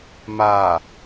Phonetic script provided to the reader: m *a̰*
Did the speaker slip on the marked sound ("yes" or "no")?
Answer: yes